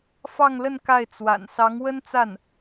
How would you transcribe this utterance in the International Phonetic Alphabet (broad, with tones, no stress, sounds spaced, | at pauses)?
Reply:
f ɑ˥˧ ŋ l ə˥˧ n k a˥˩ ɪ̯ t͡s w a̰˨˩ n s ɑ˧˥ ŋ w ə˥ n t͡s a˥˩ n